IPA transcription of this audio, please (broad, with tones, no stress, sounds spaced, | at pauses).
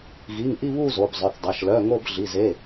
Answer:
ɣ i˩˧˩ ŋ ʔ i˦˨ β u˦˨ z o˩˧˩ b zˤ œ˩˧˩ θ dˤ ɐ˩˧˩ ʃ l œ˩˧˩ ŋ o˦˨ b ɮ i˩˧˩ z e˩˧˩